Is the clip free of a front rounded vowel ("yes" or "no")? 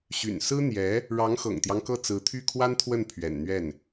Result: no